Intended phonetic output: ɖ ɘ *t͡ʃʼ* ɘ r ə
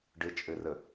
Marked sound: correct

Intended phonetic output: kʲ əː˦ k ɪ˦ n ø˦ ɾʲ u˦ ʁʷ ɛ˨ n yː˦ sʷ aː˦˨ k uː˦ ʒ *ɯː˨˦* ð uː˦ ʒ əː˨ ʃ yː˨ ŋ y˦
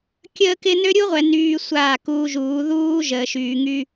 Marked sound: incorrect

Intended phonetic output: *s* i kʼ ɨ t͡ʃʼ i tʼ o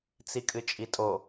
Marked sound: incorrect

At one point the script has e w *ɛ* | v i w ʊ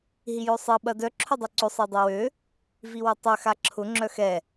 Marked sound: incorrect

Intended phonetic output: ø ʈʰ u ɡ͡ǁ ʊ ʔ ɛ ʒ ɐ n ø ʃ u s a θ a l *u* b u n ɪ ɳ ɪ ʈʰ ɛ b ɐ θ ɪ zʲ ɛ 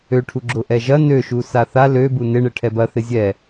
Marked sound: incorrect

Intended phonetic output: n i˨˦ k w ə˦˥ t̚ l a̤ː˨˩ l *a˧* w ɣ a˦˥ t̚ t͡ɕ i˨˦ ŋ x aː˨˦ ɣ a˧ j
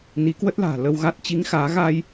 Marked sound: incorrect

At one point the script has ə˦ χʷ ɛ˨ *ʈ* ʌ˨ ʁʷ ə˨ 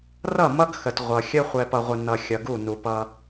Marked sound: incorrect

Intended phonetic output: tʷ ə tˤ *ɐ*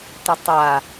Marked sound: incorrect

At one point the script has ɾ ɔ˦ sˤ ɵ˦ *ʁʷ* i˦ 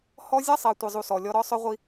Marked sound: correct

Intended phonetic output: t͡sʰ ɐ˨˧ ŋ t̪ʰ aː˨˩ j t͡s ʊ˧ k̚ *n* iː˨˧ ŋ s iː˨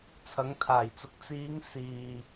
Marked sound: incorrect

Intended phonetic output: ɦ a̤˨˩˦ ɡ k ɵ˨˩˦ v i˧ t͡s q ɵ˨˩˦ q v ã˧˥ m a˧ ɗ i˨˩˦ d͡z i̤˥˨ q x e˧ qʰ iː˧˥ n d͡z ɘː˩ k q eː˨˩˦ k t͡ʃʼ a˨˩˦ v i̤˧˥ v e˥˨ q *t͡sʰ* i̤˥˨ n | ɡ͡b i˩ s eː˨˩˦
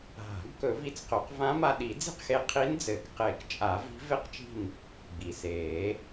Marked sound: incorrect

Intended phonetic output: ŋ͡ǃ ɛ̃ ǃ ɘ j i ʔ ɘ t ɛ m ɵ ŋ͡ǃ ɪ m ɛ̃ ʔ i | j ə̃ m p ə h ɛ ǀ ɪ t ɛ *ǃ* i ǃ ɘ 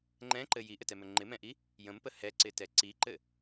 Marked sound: incorrect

